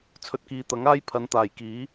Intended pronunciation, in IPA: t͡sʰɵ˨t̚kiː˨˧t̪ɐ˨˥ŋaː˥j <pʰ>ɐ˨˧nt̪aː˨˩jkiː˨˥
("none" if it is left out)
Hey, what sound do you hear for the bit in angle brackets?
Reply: pʰ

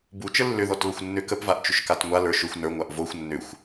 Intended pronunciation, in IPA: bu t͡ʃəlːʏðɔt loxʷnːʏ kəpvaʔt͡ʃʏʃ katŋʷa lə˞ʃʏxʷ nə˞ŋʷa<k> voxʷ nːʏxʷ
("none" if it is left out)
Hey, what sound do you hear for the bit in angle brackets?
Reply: ʔ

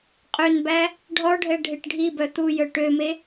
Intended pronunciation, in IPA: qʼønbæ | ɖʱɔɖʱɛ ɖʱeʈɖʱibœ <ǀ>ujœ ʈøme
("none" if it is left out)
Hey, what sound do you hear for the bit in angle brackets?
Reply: t̪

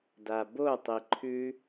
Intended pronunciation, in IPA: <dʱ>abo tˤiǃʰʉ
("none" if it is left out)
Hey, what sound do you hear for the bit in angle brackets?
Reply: d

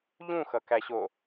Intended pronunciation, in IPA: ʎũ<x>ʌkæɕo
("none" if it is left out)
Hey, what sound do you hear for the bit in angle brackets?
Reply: x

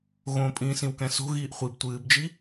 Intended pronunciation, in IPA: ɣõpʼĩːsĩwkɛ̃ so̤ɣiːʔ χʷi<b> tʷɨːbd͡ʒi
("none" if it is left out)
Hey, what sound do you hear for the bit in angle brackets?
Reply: b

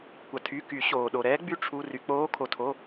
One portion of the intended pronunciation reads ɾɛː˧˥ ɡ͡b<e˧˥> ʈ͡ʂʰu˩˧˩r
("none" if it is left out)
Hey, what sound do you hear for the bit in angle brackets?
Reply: y˧˥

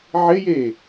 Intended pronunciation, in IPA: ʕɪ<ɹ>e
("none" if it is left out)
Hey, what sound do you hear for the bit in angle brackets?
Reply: j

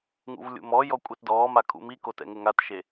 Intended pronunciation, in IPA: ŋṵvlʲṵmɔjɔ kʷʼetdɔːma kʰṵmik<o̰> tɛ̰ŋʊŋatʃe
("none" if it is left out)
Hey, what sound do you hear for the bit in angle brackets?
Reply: o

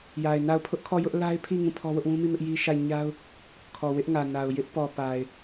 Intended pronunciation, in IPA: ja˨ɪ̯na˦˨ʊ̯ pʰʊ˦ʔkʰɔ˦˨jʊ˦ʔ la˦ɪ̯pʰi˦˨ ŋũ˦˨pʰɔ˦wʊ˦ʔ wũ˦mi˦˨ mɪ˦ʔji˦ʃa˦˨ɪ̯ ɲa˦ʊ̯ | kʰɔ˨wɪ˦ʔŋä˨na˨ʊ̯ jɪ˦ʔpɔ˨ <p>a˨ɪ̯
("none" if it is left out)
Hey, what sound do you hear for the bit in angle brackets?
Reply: p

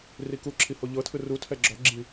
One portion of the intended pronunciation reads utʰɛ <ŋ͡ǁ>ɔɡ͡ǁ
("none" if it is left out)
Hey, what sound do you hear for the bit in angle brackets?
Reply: ɡ͡ǁ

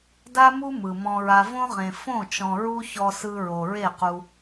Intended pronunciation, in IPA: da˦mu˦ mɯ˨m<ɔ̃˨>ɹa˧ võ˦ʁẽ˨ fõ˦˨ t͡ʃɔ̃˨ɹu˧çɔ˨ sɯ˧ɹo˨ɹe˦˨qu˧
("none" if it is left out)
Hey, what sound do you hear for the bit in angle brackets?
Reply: ɔ̃˧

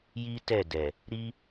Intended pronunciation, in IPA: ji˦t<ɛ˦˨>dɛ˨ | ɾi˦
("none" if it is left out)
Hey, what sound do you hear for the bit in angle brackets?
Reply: ɛ˦˨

